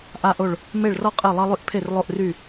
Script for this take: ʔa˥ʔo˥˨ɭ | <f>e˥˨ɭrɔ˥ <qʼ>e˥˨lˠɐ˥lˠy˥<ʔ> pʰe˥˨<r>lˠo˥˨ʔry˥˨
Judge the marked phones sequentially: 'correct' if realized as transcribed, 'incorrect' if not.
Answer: incorrect: m, correct, correct, correct

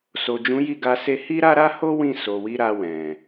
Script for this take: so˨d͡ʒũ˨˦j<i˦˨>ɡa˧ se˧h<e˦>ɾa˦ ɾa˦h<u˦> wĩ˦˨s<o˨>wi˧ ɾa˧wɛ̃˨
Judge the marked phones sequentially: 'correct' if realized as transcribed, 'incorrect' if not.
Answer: correct, incorrect: i˦, incorrect: o˦, correct

